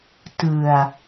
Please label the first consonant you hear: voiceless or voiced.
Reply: voiceless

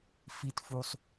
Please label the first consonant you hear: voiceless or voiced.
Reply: voiceless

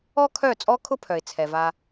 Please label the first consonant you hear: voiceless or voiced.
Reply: voiceless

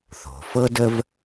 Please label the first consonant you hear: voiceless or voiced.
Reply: voiceless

